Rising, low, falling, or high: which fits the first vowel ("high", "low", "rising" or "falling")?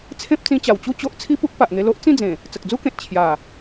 high